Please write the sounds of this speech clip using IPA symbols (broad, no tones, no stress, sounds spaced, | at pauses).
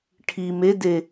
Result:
ʈʰ i m e d e